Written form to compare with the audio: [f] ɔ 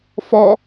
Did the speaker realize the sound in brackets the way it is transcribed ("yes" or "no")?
yes